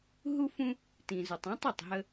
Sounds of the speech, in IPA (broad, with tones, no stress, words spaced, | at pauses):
ɦu˦fũ˦ | tĩ˨zu˨tˤ ɔ̃˦tˤ u˨tˤɦə˦